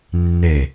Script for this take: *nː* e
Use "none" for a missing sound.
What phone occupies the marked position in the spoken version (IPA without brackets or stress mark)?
nː